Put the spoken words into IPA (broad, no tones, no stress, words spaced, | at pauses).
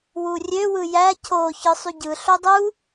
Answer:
wurʲøwɯ jæ cʰo çɯsˤyɟɯɬo dˤu